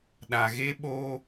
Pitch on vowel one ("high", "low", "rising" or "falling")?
low